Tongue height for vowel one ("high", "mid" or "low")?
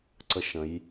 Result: mid